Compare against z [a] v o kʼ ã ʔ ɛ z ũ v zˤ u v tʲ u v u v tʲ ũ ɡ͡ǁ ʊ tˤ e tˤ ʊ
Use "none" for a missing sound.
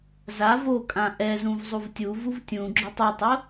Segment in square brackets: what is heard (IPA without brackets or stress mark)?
a